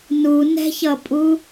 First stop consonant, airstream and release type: ejective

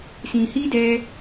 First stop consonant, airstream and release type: plain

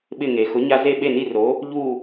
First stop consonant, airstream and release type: implosive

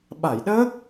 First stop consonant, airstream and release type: implosive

